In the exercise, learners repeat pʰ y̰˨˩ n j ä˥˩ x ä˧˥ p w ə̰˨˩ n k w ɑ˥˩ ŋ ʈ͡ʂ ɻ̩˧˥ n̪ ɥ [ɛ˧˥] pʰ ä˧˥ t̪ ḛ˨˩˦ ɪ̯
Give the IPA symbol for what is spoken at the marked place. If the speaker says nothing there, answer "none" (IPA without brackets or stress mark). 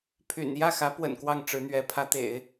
ɛ˧˥